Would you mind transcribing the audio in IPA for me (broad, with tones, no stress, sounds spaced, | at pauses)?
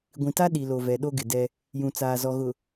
ɡʷ ĩ˨ t a˦ ɗ i˨ l o˨ v ɛ˨ ɗ o˦ ɡ ɪ˨ d ɛ˦ | j ũ˨ t͡s aː˨ z ɔ˨ ɣ ʊ˨